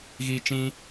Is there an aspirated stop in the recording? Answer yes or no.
no